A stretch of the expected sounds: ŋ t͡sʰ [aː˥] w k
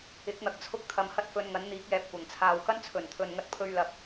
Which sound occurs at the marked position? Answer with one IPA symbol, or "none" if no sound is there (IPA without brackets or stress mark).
aː˨